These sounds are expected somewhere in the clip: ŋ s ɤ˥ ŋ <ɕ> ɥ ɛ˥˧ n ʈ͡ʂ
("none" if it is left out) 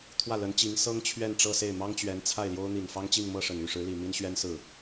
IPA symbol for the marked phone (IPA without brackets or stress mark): t͡ɕʰ